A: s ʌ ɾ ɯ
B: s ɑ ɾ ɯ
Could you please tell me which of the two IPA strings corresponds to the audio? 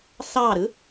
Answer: B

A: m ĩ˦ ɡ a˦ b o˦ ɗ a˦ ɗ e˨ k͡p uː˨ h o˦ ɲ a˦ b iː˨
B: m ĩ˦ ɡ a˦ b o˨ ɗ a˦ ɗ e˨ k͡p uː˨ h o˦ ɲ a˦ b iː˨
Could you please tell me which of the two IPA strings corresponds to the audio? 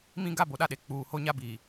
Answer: B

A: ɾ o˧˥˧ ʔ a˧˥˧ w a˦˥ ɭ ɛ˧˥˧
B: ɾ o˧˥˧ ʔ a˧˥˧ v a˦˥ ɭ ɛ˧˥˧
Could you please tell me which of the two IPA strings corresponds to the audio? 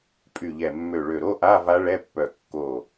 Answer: B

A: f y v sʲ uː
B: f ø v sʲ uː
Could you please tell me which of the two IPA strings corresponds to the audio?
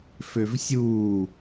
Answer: B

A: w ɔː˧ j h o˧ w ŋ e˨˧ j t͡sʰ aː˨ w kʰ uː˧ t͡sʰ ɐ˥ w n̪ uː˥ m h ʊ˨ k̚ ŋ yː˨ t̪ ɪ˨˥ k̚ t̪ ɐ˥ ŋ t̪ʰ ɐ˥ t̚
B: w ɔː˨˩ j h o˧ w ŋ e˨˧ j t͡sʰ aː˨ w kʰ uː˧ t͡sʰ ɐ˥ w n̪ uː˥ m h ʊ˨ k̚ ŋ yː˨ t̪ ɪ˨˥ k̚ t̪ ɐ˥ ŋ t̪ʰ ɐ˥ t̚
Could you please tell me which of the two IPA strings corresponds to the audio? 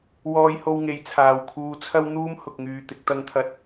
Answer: A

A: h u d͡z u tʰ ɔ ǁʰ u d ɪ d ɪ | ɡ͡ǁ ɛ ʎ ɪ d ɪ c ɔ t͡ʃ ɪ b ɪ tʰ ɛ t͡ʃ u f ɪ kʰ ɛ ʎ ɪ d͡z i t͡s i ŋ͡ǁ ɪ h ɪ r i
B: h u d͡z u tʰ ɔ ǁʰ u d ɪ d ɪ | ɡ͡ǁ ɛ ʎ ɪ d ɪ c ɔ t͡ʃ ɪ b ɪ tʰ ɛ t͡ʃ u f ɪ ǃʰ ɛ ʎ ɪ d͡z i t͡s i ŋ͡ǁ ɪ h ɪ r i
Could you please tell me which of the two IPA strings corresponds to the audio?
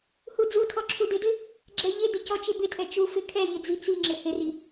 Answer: A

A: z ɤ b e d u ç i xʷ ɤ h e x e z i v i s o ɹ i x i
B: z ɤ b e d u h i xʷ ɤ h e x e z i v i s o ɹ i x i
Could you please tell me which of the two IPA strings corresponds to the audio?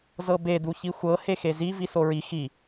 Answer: A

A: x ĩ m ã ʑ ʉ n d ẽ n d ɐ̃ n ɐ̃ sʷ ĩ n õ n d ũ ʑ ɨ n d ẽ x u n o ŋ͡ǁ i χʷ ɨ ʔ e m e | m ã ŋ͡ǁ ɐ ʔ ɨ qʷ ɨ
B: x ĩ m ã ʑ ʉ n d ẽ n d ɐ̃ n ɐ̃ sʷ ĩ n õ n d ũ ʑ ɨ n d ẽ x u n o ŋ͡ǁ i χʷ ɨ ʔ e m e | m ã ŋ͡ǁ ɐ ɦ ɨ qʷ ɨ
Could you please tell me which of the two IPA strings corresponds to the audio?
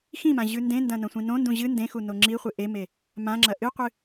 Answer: A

